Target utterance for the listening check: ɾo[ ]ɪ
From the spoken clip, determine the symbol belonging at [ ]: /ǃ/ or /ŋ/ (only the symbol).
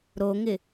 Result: ŋ